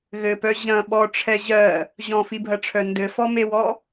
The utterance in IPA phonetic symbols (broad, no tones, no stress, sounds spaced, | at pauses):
ɣ ɘ p œ ʑ ɐ̃ ɓ ɔ ʈ͡ʂʰ ɛ ʑ ɜ | ʑ ɔ̃ f i bʱ ɐ ʈ͡ʂʰ œ n d ɘ f ɔ m e w ɔ